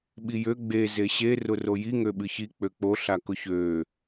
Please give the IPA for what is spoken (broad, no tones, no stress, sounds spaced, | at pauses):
ɓ i j ø ɡ͡b e z e ɕ e r ʊ r o j i ŋ ø ɓ ɨ ç i k͡p ø k͡p o ɬ a k ʊ ç øː